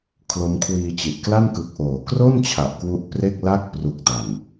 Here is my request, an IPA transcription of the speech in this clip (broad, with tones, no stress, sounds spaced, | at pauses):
kʰ l o˦˥ m kʰ w iː˧ t͡ɕ i˨˩ ʔ k l a˥˩ n k ɯ˨˩ k̚ ʔ oː˩˦ k r o˥˩ n t͡ɕʰ a˨˩ ʔ k w u˦˥ ʔ p r e˥˩ k̚ l a˥˩ k̚ p r u˨˩ k̚ d a˨˩ n